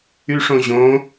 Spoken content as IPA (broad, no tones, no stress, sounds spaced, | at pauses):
y ʂ õ ʑ õ